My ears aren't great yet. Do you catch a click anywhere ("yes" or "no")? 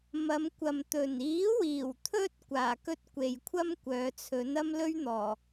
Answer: no